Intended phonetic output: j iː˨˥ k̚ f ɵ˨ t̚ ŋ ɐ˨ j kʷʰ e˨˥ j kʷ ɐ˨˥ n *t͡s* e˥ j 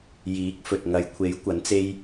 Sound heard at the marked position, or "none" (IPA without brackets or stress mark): t͡s